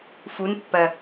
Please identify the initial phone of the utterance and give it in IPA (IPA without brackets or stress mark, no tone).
f